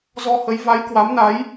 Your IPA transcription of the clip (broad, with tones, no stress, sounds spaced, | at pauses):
z ɔ˧ h ə˨˦ j v a˨˦ j k w a˨˦ m n a˨˦ j